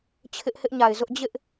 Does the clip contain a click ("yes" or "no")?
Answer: no